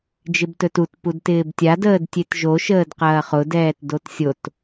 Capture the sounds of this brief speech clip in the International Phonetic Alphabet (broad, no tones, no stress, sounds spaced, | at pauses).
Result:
d͡ʒ ɪ b t ɵ t u t p u d t ɪː b tʲ a d əː d tʲ e t ʒ o ʃ əː d q ɐː χ ʊ d ɛː t d o t sʲ o t